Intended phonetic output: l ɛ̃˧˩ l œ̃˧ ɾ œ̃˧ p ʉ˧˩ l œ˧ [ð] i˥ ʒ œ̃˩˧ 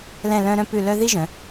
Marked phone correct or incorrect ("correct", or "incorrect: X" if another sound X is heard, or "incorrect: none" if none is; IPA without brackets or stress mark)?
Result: correct